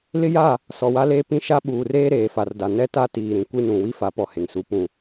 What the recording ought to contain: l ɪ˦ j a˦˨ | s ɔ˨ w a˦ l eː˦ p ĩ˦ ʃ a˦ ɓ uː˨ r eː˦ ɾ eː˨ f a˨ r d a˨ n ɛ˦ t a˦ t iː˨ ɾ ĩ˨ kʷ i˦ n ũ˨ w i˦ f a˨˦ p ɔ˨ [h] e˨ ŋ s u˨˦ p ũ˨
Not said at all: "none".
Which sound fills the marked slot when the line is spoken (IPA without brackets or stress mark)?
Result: h